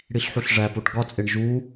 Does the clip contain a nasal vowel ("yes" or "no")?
no